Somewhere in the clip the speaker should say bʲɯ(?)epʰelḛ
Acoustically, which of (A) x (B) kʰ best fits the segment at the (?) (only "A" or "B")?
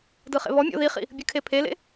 B